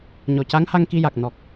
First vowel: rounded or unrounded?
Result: rounded